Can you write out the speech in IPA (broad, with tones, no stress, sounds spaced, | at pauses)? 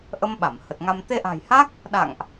ʔ ə˧ m ɓ a˧˩ m h ə˨˩ t̚ ŋ a˧ m t̪ e˧ ʔ a̤˨˩ j h a˦˥ k̚ | ɗ a̰˧˨ ŋ ʔ